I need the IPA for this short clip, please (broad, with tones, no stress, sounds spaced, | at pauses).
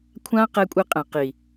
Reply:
kʷʰ ã˦ q ɛ˦ kʷʼ e˦ qʼ ɛ̃˨ q i˨